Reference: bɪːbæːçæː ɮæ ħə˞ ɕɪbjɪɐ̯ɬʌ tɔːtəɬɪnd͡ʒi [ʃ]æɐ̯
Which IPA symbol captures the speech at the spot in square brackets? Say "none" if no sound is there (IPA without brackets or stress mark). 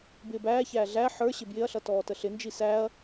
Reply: s